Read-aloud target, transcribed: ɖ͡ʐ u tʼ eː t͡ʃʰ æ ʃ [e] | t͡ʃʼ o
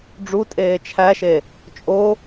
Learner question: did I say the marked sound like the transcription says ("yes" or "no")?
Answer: yes